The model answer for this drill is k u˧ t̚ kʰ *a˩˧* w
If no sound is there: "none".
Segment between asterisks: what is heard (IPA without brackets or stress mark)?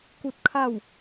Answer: a˥˨